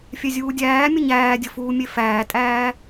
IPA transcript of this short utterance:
fʲɛzʲuːdʲæːmʲə ɲæːdʲə fuːmʲefæːtʼæː

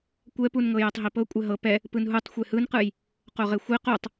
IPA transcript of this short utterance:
kʷɛpunŋɤ jɛtˤɦipɤ kʷʼɛɦɤ pɛ | pɯnɦutˤ xʷehɯnqɯj | qoʁexʷe qutˤ

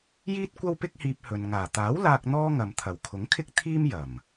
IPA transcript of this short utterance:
jiː˥t̚ kʷɐ˥wpɪ˥k̚hiː˧p̚hɵ˨n ŋaː˨˩t̪aː˨˥w laː˧k̚ n̪ɔː˥ŋɐ˨m t̪ʰɐ˨˩wkʰʊ˨˥ŋkʰɪ˥k̚ t̪ʰiː˥m jɐ˨˩m

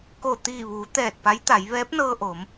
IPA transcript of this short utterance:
ko˧˩t̪iː˧˩ʋuː˩˧ t̪ɛː˧˩t̚pa˧˥j t̪a˩˧j ʋɛː˧˥p̚nɤː˧ʔo˩˧m

